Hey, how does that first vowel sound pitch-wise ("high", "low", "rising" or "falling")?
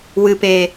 low